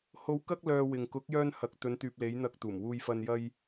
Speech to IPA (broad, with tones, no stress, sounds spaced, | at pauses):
h o˨˥ w k ɐ˧ k̚ l œː˨ w ɪ˨ ŋ k ʊ˨˥ k̚ j œː˧ n h ɐ˨˥ k̚ t̪ ɵ˨˧ n t̪ yː˨ p̚ l e˨˧ j n̪ ɐ˧ k̚ t̪ uː˨˩ m w uː˧ j f ɐ˧ n j ɐ˧ j